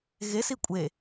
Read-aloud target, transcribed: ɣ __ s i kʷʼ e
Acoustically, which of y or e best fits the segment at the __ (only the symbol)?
e